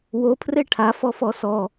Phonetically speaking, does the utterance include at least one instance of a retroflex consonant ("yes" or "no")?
yes